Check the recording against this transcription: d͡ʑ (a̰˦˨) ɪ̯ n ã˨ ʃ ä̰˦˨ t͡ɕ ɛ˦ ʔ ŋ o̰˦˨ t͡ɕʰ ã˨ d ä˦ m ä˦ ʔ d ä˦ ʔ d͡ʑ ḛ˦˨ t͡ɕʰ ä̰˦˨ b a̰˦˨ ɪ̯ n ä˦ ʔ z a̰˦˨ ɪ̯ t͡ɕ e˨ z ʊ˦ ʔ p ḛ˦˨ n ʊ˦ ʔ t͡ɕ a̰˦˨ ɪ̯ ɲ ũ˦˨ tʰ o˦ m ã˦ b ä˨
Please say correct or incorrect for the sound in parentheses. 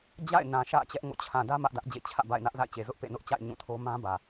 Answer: correct